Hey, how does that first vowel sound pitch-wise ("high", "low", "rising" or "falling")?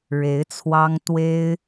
rising